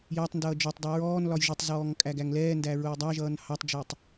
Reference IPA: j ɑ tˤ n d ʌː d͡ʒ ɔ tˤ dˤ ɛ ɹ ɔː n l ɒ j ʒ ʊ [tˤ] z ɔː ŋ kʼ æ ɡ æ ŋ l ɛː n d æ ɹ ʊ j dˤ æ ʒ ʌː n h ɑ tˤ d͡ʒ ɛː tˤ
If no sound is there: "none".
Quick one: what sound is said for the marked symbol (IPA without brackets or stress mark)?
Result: tˤ